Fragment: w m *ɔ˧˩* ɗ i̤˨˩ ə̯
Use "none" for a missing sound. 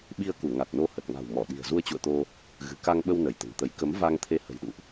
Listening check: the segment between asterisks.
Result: ɔ˧˩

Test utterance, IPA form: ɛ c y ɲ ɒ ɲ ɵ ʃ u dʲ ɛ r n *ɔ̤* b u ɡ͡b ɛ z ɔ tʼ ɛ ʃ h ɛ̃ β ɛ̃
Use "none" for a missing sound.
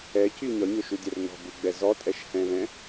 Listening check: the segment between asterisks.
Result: ɔ̤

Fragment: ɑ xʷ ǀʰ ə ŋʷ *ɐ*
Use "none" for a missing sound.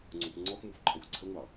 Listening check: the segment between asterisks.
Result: ɑ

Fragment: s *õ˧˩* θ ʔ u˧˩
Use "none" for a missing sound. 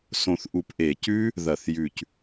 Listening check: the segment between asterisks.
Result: õ˧˩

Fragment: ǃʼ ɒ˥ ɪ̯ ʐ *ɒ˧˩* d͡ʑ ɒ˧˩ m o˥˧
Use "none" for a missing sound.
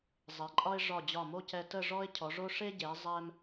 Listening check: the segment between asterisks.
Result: ɒ˧˩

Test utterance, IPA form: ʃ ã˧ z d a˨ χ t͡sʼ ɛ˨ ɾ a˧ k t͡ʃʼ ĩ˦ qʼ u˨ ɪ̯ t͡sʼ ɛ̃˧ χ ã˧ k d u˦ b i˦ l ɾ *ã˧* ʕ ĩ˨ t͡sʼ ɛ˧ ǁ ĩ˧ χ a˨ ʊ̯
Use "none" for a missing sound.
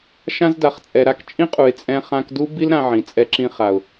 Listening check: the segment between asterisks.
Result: ã˧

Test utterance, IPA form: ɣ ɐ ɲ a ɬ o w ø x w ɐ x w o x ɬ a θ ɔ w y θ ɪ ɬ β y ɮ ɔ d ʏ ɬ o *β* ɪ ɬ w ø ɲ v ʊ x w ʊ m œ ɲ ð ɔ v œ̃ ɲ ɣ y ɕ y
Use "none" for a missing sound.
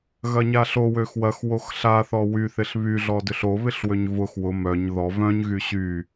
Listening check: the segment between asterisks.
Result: β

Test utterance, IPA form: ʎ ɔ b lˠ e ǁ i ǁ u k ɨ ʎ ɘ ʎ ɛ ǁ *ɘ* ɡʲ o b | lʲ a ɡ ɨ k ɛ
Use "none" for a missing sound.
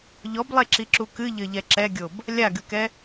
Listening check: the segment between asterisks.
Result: ɛ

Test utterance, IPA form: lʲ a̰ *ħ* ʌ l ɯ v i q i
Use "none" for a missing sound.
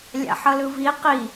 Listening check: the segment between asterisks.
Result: ħ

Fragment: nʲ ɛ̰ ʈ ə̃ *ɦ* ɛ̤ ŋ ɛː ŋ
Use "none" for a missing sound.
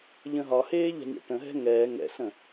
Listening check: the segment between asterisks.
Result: ɦ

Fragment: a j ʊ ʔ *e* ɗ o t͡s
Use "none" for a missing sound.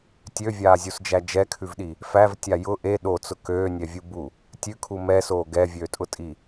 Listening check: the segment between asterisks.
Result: e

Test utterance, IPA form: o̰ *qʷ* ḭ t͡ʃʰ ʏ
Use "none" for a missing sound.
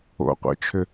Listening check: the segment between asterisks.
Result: qʷ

